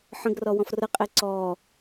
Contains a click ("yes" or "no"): yes